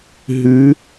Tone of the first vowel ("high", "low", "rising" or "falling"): rising